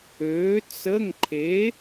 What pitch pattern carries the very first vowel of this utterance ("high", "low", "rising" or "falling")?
rising